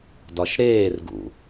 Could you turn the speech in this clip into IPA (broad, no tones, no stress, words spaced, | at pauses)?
dɒʃɾeːrɡṵ